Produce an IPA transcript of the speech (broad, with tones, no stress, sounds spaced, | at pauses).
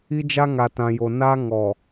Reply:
i˦ d͡ʒ a˦ ŋ a˨ t ã˨ j o˨ n aː˦ ŋ ɔ˨